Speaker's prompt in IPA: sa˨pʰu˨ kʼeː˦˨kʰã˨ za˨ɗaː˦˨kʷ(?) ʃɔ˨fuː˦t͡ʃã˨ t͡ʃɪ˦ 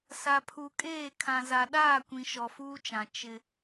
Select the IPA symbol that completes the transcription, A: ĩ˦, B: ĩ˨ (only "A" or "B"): B